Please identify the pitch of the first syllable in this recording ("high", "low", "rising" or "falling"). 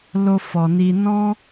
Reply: high